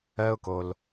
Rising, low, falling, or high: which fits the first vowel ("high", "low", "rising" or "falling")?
high